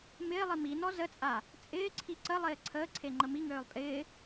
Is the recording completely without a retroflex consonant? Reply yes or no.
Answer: yes